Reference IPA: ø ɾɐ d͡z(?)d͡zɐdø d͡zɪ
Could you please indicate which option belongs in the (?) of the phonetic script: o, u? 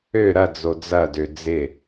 o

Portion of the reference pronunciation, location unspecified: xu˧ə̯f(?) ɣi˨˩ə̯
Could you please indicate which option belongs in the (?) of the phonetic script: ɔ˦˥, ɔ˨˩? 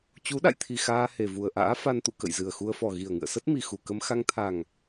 ɔ˨˩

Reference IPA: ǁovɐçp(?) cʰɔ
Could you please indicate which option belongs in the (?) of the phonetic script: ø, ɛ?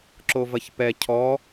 ɛ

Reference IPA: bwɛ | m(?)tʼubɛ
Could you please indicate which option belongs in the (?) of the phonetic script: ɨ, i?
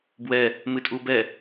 ɨ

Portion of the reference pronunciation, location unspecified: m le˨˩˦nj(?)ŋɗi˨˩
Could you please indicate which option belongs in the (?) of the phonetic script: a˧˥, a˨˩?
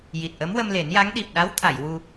a˧˥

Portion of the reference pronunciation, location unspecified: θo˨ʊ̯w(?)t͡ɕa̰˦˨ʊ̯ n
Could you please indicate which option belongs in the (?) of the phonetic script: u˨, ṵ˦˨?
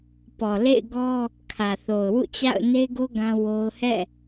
ṵ˦˨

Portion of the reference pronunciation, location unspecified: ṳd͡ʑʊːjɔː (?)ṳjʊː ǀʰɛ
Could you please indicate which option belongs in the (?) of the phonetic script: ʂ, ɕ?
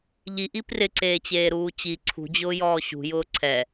ɕ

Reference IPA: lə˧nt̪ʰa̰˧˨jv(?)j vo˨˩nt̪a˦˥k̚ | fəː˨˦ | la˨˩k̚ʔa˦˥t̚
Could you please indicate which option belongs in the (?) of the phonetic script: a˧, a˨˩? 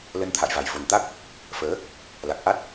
a˨˩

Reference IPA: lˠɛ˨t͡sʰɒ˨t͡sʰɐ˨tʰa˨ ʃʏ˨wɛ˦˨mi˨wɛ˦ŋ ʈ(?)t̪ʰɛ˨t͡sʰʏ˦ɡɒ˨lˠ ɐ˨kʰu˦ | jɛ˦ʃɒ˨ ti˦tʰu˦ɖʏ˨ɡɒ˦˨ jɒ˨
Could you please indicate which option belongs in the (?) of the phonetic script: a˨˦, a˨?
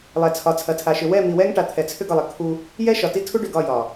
a˨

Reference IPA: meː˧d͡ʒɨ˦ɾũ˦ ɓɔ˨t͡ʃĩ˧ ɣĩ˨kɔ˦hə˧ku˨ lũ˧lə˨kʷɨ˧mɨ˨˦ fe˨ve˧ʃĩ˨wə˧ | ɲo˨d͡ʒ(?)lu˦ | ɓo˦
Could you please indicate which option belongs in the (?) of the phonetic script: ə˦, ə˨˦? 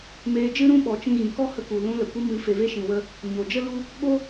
ə˦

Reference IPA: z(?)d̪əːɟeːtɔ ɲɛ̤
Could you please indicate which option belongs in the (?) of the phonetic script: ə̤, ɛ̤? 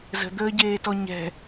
ə̤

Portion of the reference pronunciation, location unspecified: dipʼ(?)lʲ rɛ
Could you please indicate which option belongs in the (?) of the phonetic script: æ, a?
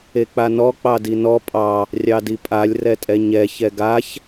a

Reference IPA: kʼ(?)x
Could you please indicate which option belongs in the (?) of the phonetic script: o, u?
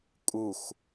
u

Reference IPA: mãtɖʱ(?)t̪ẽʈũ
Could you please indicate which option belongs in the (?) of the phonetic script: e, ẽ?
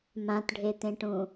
e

